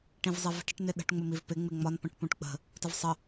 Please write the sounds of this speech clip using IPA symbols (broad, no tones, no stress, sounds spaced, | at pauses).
ʈ ĩ v zˤ i v ə̤ ʈ ɪ ʈ n ɪ ɗ ə̤ ʈ ŋ͡m ʊ m i v p ɪ ŋ͡m ɪ ŋ͡m ɒ n p ə̃ ʈ p ũ ʈ k͡p ə̤ | t ə v sˤ ə